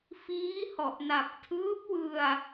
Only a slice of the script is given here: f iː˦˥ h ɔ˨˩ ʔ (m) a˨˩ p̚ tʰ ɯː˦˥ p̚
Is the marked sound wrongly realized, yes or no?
yes